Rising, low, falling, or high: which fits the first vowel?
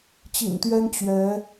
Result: low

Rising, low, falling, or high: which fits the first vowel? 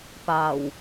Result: low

